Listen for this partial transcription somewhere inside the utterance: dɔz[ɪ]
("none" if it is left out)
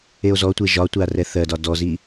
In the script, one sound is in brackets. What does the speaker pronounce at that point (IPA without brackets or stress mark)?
i